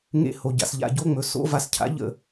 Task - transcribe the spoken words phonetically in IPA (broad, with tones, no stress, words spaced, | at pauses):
ŋḛ˧˩ho˩ ɟa̰˩sʎa̰˧˩˧ɟo˧˥˧ŋ͡mɵ˩ so̰˧˥˧va˧˩˧scʰa̰˧˥ ʎə̰˧˩